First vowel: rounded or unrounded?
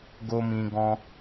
rounded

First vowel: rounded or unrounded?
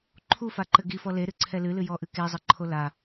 rounded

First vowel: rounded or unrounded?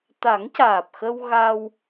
unrounded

